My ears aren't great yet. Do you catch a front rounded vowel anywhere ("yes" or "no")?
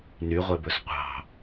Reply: yes